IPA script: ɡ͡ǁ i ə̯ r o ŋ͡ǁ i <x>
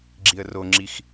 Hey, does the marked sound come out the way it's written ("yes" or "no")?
yes